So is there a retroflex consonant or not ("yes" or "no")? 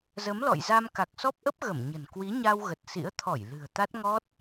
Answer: no